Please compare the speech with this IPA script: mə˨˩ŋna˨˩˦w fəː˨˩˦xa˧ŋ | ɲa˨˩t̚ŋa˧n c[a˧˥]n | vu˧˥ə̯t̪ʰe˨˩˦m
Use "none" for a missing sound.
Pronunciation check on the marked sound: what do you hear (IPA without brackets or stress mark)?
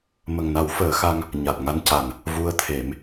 a˨˩